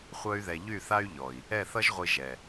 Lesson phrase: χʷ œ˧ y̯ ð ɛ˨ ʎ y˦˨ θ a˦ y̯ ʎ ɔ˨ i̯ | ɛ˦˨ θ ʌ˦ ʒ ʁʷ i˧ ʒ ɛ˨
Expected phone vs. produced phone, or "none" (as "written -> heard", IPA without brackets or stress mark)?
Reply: none